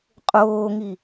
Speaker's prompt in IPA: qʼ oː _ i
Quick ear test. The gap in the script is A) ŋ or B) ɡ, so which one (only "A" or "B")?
A